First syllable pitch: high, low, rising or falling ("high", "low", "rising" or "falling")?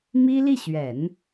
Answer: high